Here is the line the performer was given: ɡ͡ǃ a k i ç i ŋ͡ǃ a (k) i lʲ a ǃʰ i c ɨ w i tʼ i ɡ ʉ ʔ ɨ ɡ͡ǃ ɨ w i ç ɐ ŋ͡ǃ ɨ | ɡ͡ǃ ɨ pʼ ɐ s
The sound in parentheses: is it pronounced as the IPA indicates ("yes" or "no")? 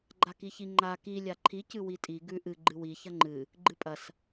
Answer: yes